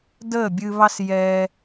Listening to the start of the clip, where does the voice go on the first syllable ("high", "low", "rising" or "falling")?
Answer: falling